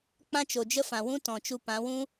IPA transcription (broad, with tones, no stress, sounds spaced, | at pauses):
k͡p ã˦ t͡ʃ o˨ d͡ʒ ə˦ f ã˨ w ũ˦ t ɔ̃˨ t͡ʃ u˧ p ã˨˦ w ũ˦